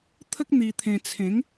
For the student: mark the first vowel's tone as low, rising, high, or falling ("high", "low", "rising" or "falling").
high